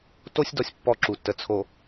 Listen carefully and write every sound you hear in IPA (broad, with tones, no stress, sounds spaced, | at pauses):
t o˦ sʲ d ɔ˦˨ sʲ pː ɔ˦˨ ǁ u˨ tː ə˨ t͡sʰ o˨